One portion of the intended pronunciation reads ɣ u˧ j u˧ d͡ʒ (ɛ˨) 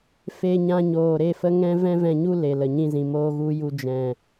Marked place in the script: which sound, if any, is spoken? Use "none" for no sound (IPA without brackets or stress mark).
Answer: ɛ̃˨